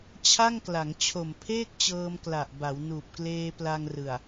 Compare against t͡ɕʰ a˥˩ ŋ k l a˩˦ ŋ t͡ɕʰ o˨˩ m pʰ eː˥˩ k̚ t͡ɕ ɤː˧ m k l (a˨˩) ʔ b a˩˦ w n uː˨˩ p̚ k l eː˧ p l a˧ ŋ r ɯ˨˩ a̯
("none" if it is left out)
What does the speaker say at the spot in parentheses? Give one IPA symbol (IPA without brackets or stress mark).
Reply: a˨˩